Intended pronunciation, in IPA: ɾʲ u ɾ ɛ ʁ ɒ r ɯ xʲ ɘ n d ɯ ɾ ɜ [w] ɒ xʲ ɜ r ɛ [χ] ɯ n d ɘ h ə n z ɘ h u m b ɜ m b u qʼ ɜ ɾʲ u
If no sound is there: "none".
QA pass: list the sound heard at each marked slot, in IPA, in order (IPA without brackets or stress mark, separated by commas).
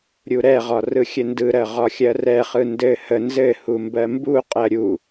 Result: ʁ, χ